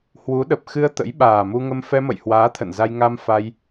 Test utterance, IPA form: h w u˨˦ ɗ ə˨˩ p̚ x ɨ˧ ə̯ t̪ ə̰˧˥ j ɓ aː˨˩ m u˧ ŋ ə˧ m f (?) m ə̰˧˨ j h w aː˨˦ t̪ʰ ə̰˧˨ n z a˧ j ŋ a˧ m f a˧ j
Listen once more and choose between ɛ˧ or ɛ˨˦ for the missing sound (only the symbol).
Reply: ɛ˧